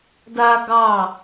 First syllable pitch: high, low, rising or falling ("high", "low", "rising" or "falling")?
high